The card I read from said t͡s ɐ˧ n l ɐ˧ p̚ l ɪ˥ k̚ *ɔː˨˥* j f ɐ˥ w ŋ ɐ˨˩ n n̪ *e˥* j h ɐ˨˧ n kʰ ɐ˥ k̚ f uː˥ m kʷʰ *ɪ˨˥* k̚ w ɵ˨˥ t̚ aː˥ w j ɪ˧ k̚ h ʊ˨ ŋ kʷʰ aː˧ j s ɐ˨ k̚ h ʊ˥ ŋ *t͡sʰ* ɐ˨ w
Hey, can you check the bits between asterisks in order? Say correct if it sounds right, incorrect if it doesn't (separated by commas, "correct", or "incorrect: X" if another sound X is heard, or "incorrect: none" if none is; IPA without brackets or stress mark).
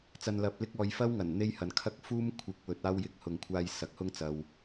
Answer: incorrect: ɔː˧, correct, correct, incorrect: t͡s